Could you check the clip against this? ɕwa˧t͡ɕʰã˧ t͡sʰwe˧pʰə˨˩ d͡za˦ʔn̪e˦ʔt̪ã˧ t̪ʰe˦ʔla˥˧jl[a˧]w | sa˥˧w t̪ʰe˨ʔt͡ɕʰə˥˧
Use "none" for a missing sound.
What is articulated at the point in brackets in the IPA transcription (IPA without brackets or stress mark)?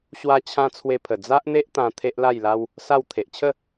a˦